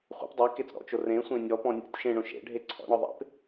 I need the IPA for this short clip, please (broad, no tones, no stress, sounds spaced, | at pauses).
χʷ ḛ p dˤ ɛ k e t͡s ɾ ɔ̰ t͡ʃ o r ẽ sʷ ẽ nʲ ɔ p ɔ̃ nʲ o̰ tʲ ʃ ẽ ɳ õ ʃ ḛ ɖʱ e ǀʰ ɔ̰ ɳ ɔ ðˤ ḛ p